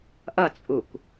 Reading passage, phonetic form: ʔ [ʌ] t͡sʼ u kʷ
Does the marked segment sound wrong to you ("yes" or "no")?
no